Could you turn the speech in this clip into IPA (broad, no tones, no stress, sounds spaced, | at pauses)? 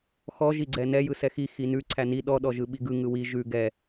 x ɔ ʒ i ɡ͡ǀ ɛ n ɛ j ɯ s ɛ x i x i n ʉ ǀʰ æ n i ɗ ɔ ɗ ɔ ʒ ɯ ɓ i ɡ ɯ ŋ ɯ w i ʒ ʉ ɡ ɛ